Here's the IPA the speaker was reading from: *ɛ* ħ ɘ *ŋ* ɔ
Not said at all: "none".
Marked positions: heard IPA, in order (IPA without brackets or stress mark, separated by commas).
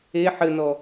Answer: e, n